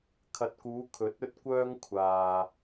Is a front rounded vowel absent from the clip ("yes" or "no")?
no